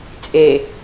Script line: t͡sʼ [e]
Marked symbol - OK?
yes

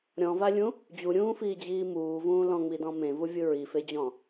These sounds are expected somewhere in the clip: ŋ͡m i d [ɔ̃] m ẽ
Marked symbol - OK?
yes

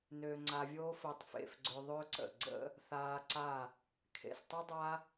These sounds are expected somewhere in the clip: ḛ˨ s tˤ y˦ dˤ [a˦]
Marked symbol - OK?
yes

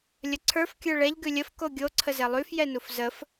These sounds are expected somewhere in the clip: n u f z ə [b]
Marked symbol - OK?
no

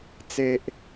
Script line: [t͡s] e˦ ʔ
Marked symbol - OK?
yes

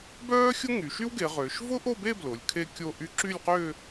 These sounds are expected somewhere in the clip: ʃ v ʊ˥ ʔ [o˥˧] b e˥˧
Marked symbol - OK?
yes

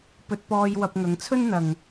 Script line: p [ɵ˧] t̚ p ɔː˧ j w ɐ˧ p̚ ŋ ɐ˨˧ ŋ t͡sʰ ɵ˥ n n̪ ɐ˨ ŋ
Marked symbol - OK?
yes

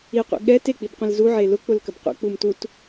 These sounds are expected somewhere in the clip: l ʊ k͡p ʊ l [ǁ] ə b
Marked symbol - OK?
no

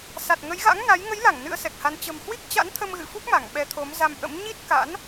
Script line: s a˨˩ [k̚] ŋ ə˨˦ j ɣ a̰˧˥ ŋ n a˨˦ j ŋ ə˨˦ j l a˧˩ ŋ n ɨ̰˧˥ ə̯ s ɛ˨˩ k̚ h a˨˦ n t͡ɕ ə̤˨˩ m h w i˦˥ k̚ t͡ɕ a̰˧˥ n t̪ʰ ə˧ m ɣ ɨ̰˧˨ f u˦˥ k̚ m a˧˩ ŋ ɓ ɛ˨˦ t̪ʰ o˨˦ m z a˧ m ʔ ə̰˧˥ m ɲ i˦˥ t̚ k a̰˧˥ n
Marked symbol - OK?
no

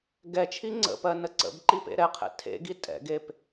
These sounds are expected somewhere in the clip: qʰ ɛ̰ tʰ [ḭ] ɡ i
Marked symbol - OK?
no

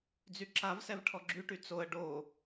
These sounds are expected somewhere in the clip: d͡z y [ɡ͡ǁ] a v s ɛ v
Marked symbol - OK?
no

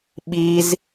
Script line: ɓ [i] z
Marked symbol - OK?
yes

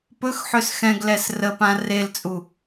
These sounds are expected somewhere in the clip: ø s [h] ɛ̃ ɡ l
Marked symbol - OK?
no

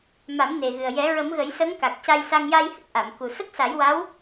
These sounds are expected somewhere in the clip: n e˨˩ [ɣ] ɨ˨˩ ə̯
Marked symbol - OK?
yes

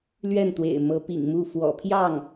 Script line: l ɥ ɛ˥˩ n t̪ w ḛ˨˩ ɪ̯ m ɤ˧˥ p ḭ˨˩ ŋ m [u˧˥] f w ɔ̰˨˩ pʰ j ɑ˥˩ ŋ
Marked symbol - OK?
no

